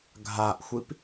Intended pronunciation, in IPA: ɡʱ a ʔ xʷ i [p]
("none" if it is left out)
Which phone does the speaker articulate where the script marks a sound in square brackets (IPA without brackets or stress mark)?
p